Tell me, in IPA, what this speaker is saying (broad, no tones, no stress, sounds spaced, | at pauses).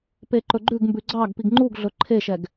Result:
p e ǃ ɵ ɡ͡ǃ ʉ ɡ m b ʉ ɡ͡ǀ ɑ ɡ p i ɡ ŋ͡ǃ u ɡ ɮ ɵ ǃʰ e ʃ ɛ ɡ